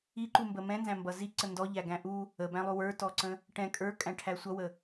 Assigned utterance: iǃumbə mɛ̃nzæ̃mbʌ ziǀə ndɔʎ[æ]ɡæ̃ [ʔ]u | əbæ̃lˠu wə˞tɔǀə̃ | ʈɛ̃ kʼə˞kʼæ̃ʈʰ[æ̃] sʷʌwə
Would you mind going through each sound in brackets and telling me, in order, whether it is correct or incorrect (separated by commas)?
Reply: correct, correct, incorrect